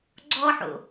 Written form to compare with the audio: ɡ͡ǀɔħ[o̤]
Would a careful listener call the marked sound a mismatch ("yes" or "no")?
yes